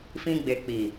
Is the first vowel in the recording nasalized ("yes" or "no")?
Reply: yes